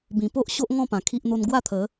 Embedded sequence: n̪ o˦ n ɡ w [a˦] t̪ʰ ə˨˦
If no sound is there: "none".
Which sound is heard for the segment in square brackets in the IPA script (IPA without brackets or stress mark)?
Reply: a˥˧